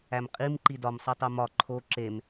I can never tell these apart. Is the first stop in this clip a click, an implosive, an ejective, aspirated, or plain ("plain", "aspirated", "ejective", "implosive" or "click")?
ejective